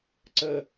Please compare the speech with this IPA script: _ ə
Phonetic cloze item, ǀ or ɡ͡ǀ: ǀ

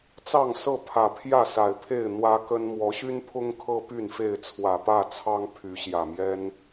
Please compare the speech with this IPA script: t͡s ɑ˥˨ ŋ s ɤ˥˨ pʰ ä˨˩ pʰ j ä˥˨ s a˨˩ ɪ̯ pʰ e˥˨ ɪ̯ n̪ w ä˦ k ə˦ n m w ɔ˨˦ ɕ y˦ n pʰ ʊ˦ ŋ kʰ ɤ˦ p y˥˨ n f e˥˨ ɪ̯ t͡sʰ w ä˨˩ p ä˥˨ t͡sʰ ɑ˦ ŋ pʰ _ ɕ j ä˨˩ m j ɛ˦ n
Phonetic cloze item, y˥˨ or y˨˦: y˨˦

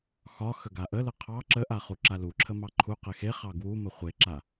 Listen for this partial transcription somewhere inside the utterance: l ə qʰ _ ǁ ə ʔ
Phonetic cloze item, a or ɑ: ɑ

